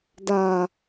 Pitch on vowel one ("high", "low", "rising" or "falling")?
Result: low